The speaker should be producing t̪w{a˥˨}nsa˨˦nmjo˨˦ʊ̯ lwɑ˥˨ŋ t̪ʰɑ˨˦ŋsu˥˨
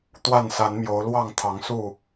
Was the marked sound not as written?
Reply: no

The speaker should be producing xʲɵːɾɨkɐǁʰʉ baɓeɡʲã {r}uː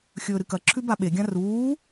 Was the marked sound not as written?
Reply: no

